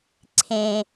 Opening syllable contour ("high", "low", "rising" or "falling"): high